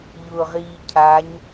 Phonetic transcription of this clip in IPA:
ʎ ʊː ʁ iː cʰ a ɲ

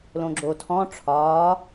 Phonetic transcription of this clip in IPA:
l õ ɡ͡ǁ o tʰ ɔ̃ ʈ͡ʂʰ ɒː

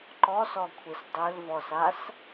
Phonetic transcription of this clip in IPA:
ǃ ɔ s ɔ kʷʰ i s dˤ ø l v ɔ s a s

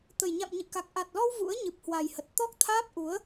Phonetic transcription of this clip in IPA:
t̪ ə˨˩ j ɲ a̰˧˨ m ɲ ɨ̰˧˨ k a˨˩ k̚ ʔ a˨˩ t̚ l ɔ˧ w v ṵ˧˥ ə̯ ɲ ɨ˨˩ p̚ h w a˨˩ j h ə˨˩ t̚ t̪ ɔ˦˥ k̚ t̪ʰ aː˦˥ p̚ ʔ u˨˦ ə̯

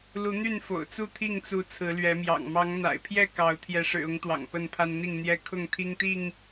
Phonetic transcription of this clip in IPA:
l u˨˦ n̪ y˥˨ n f o̰˨˩ ʊ̯ t͡s u˥˨ t̪ʰ i˥˨ ŋ t͡s u˨˦ t͡sʰ ɹ̩˨˦ l ɥ ɛ˨˦ m j ɑ̰˨˩ ŋ m ɑ˨˦ ŋ n̪ a̰˨˩ ɪ̯ pʰ j ɛ˥˨ k ɑ˨˦ ʊ̯ t̪ʰ j ɛ˨˦ ʂ ɻ̩˨˩ ʊ˨˦ ŋ t̪ w ɑ̰˨˩ ŋ p ə˥˨ n pʰ a˦ n n̪ i˥˨ ŋ n̪ j ɛ˦ kʰ ʊ˥˨ ŋ t̪ʰ i˦ ŋ t̪ i˥˨ ŋ

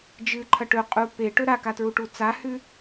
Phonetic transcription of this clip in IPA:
d͡ʒ ɨ ǃʰ ɐ ʈ ɵ qʼ u p e ʈ ɵ ɾ a k a t ɹ u ʈ u t͡s a h ʉ

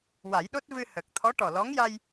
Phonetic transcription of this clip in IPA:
w a˨˩˦ j ɗ o˦˥ t̚ v ɨ˧ h ə˨˩ k̚ t̪ʰ ɔ˧˥ ʈ ɔ˨˩ l ɔ˧˥ ŋ j a˧ j

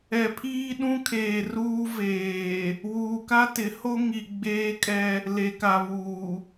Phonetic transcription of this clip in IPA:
ɛ˨ pʰ iː˦ ɗ ũ˦ kʰ eː˨ r uː˦ v eː˨ | w uː˨ k a˦ t ɪ˨˦ h o˦ ŋ i˨ ɡ͡b eː˦ kʼ ɛ˦ | l e˨ k a˨ β uː˨

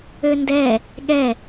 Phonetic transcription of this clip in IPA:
ø n d ɛ | ɠ ɛ

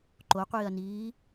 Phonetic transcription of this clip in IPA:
ǃ o qʷ iː ɐ̯ n iː

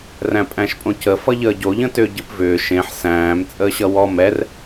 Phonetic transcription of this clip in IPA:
r æ̃ pʼ æ̃ ʃ pʼ õ c ə f ʌ ʎ əː ɟ o ʎ ə̃ t ʏː ɟ ɨ p v ʏː ʃ ẽ ħ s æ̃ː m t͡sʼ əː ɕ ʌ w ɔ m ɛ r

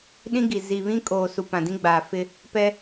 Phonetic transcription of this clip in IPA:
ɗ ĩ˦ ɡ i˨ z i˨ β ĩ˦ kʼ oː˨ s u˨ p ã˨ d ĩ˦ ɡ͡b aː˨ f ɪ˦ | p ɛ˦

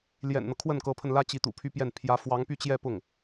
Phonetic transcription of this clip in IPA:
l j ɛ̰˨˩ n n̪ ɤ˦ kʰ w ə˥˩ n k ɤ˧˥ pʰ ə˧ n l ä˥ t͡ɕ i˧˥ t̪ ṵ˨˩ pʰ y˥˧ p j ɛ˥˩ n pʰ j ä˧˥ f w ɑ˧˥ ŋ p y˥˧ t͡ɕ j ɛ˥˧ p ʊ˥˩ ŋ

